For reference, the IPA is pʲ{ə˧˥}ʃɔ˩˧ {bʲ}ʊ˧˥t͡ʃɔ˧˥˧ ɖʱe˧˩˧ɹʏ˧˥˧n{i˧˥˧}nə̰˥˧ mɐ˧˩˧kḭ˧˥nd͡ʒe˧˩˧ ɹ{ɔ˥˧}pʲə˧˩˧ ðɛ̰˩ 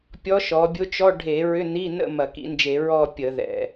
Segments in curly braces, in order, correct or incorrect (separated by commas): incorrect, correct, correct, correct